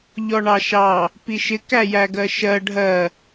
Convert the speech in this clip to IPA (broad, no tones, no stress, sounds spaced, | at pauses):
ʎ ɔ ɳ ɑ ʃ ɑ | p i ʃ ɪ k æ j æ ɡ ɜ ʃ ɜ ɖʱ ɜ